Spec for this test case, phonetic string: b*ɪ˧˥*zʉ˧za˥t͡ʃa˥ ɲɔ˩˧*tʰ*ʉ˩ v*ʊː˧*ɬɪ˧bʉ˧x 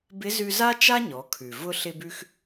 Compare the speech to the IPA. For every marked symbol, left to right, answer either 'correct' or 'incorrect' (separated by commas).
correct, incorrect, incorrect